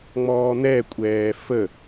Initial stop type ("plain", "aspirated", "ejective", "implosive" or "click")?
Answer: ejective